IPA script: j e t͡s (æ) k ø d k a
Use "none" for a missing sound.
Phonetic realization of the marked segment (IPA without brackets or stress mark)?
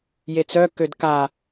œ